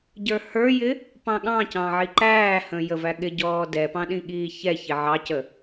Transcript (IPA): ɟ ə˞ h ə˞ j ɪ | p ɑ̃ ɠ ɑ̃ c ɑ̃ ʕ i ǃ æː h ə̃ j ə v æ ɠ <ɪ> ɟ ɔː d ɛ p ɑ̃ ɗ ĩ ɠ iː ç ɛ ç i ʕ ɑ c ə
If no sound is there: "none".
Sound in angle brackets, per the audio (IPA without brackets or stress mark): ɪ